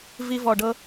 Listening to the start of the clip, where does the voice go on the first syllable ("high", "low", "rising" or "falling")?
high